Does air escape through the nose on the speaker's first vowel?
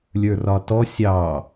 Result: no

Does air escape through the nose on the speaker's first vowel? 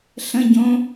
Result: yes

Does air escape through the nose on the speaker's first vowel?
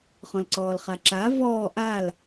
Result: yes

